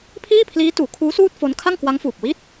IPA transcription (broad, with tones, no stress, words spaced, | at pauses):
pʰiː˥˩pʰliː˦˥tuː˩˦kʰuː˦˥ suː˥˩t̚fo˦˥n kʰa˥˩ŋkwa˦˥ŋfuː˨˩p̚wi˥˩t̚